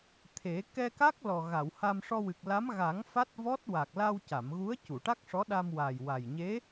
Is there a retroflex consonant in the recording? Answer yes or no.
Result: yes